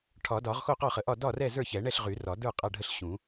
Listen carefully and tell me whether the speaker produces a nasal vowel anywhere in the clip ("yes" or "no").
yes